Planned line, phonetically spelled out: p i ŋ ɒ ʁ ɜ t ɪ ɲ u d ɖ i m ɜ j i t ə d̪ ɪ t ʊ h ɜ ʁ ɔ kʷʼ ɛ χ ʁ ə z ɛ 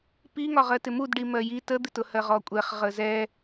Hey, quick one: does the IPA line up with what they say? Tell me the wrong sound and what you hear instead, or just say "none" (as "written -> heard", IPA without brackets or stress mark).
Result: ɲ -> m